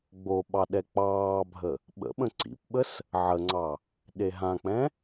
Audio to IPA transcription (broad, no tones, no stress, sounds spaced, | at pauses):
ɡ͡b o ɓ ɑ ɗ ɛ k͡p ɑː bʱ ə | ɓ ə̰ ɓ ə̃ ǀ ḭ p ɓ ə s | ʕ ə ŋ͡ǀ ɑ | ɗ e ɦ ã k͡p ɛ̃